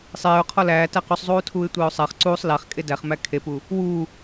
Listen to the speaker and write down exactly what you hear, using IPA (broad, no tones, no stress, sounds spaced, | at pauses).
sˤ eː ʊ̯ qʰ ɔ l æː t æ q u sˤ zˤ uː tʰ uː ɪ̯ tʷ eː ʊ̯ sˤ æ χ ǀ uː sˤ l æ χ kʼ e d æ χ m æ kʰ e p u | w uː